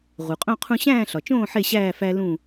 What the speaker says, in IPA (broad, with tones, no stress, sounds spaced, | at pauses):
ʁ u˩ qʼ õ˥˨ qʰ ũ˦ ɕ æ̃ː˥˨ ɬ ɒ˩ t͡ʃ õː˥˨ ħ e˥˨ ɕ æː˥˨ f æ˦ l ũ˧˩